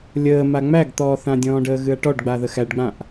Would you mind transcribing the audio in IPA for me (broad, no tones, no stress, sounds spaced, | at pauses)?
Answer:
lʲ əː m a ŋ͡m æ ɡ t̪ ɔː θ ã dʲ ɔ̃ː ɖ əː ɣ ɨ ɐ̯ ʈ ɔ ɖ ɡ͡b a ð ə x æ ɖ ɡ͡b ã ʔ